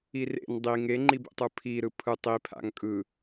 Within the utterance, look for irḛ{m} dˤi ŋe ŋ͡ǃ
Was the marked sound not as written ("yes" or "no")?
yes